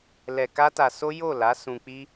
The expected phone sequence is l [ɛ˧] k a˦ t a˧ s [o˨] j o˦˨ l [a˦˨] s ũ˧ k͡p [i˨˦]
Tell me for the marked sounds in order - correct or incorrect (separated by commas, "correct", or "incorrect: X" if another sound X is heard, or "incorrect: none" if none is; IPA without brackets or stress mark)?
correct, incorrect: o˦, incorrect: a˨˦, incorrect: i˦